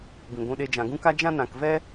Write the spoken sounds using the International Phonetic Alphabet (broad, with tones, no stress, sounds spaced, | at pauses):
b ĩ˨ ɡʷ ũ˧ ɗ e˧ d͡ʒ ã˨ ɡ ũ˦ k a˦ d͡ʒ ã˦ n ã˨ k v ɛ˦